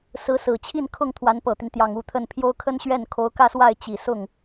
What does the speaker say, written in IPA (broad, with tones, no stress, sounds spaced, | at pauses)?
s ɹ̩˧˥ s ɹ̩˨˩ t͡ɕʰ i˥˧ n kʰ ʊ˥˩ ŋ t̪ʰ w a˧˥ n p ɤ˨˩ t̪ i˦ n t̪ j ɑ˨˩ ŋ u˥˧ t̪ʰ ə˥˩ n pʰ j o˥ ʊ̯ kʰ ə˥ n ɕ ɥ ɛ˥˩ n kʰ o˧˥ ʊ̯ k ä˥˧ s w a˥˩ ɪ̯ t͡ɕ i˨˩ s ʊ˥˩ ŋ